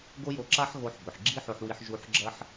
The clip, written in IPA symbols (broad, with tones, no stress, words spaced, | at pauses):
ɡo˥jo˧ǁa˥ħ ɣo˧ħbɵ˩ħ ɡ͡ǁi˥ħo˧ħwi˧ħ ʒu˧ħɡ͡ǁɐ˥ħ